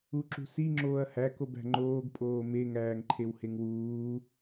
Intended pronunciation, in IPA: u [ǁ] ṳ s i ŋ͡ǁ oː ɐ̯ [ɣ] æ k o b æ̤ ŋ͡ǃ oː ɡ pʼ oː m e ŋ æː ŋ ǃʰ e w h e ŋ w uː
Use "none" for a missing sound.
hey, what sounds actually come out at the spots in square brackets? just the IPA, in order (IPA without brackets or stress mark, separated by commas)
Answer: ǁ, h